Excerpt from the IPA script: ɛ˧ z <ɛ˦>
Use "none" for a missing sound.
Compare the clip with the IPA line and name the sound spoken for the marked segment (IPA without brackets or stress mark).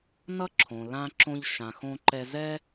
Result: ɛ˦